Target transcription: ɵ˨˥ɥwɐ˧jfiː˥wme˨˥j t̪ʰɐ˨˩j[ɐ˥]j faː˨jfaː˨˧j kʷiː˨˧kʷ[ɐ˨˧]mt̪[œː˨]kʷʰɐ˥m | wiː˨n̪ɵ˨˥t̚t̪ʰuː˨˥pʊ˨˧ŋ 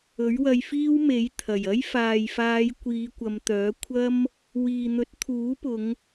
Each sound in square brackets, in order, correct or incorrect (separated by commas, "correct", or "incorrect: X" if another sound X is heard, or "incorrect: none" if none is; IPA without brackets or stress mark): correct, correct, incorrect: œː˨˥